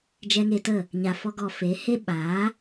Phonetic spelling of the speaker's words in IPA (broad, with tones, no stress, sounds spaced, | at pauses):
d͡ʒ ɛ˧ ŋ e˧ t ə˦˨ | ɲ a˨ f ɔ˧ ɡ ɔ˨ f e˨˦ h e˦ ɓ aː˨˦